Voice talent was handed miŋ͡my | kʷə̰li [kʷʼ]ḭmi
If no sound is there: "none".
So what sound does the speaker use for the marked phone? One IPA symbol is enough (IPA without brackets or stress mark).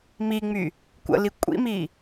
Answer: kʷʼ